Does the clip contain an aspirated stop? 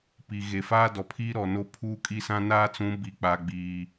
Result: yes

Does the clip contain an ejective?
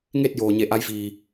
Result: no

